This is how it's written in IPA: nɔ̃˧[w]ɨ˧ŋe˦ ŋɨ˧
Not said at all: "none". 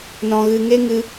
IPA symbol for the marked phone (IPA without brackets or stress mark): ɣ